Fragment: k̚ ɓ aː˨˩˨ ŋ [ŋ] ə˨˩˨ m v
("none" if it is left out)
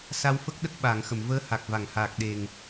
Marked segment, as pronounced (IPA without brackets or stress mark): x